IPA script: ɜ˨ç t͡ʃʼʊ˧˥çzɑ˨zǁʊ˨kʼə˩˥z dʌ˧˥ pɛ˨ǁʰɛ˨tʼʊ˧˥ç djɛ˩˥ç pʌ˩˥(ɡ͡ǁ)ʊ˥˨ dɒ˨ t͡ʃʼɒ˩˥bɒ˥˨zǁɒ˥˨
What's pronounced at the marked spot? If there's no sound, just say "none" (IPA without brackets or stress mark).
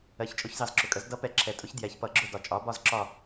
ɡ͡ǁ